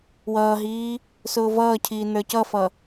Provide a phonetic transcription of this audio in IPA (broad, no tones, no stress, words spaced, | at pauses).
wʌːɦiː | sʊːvʌːcʰiː nə˞cʌfʌ